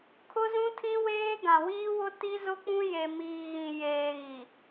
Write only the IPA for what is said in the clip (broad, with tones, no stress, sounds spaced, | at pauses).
kʰ ʊ˦ z ũ˦ tʰ ĩ˦ w eː˦ ɡ ã˨ w iː˦ w ʊ˦ t i˦ z ʊ˦ k͡p ũ˦ j e˨ m iː˨ ɣ ĩ˨ j eː˨ ɣ i˨